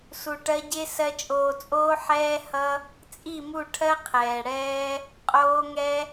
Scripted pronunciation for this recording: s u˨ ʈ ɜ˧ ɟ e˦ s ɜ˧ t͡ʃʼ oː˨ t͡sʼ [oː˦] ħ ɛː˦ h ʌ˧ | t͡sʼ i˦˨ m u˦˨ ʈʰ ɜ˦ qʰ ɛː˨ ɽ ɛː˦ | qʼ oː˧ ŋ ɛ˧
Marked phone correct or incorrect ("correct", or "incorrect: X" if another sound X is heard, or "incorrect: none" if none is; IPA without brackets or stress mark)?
incorrect: oː˧